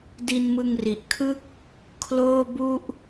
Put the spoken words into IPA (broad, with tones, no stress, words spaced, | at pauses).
di˧nmɯ˧ŋri˨˩ʔkʰɯ˥˩k̚ | kʰloː˥˩bu˥˩ʔ